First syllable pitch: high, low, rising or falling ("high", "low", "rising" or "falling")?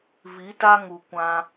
rising